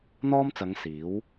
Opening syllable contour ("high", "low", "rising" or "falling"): high